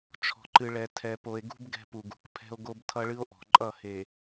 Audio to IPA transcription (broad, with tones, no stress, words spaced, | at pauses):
t͡ʃʰɔ̤˨ǃɨ˨ɭɛ˨ tʰɛ˨po˨e̯ɡṳ˦b ɡɛ̤˦pu˨ɡṳ˨k pʰɛ̤˦o̯ɡo˦b tʰʌ˦ɭɨ˦o̯ʔɔ̤˨ ǃʼʌ˦˨he˨